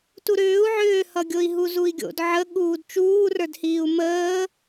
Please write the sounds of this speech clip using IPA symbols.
tuɾʏːu̯ ʕʏːhʌɡʲoi̯ ɦuzui̯ɡʲo̰d ʕə ɠuːdt͡ʃuːrə˞dhiːu̯ məː

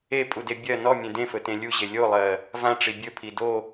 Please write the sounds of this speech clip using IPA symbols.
epʼude bʲɜ nɔmʲẽ dẽfɵtẽ lʲuʑe lʲolˠɜ | vãʈ͡ʂi bʲɵpʰi do

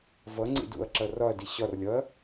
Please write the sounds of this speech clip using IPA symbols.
vʌŋ͡ǀḭ dṵɐ̯ǁʌ rɒɐ̯di ɕɒrlʲɒɐ̯

